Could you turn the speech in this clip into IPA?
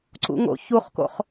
ǀṵŋo̰çuχko̰χ

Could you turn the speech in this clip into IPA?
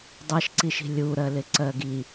dˤɜʃǀiʃi̤ lʲuɾɜlɪǀɜ ɡi

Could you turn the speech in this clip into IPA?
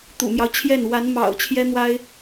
t̪ṵ˨˩mjɑ˦ʊ̯t͡ɕʰjɛ˥˩n wa˧˥nmɑ̰˨˩ʊ̯t͡ɕʰjɛ˥ n̪wa˥ɪ̯

